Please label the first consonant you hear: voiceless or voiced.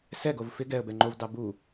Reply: voiceless